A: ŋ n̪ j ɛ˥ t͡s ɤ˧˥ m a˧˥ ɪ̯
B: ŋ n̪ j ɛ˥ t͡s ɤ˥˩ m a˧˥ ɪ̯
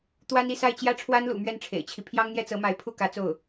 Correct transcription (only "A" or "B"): A